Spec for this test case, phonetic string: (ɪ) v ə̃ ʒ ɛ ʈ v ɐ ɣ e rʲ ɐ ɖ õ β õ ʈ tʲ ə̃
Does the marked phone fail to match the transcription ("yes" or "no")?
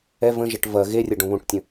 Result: yes